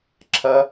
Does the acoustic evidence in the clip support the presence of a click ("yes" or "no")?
yes